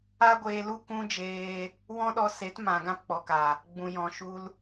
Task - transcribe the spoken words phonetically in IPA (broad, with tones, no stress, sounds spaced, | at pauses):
a˦ ɡʷ eː˧ l u˦˨ k ũ˦ d͡ʒ eː˧ | w ɔ̃˦ ɗ ɔ˧ s e˨˦ t m ã˨ ɡ ã˦ p k͡p ɔ˨ k a˨ | ɡ͡b ũ˨ j ɔ̃˨ ʃ u˧ l